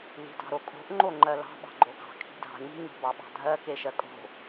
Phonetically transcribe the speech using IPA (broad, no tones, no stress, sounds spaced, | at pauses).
l i̤ d ɑ̤ ɾ o kʼ o̤ ʔ ŋ͡ǃ o ŋ͡ǃ ɜ l ɑ̤ ɓ ɑ̤ ɡ͡ǃ o ɡ ɑ̤ kʰ i̤ dʱ ɑ̤ ɲ i̤ ɲ o̤ b ɑ ɓ ɑ̤ dʱ ɜ k e ʃ ɜ kʼ o̤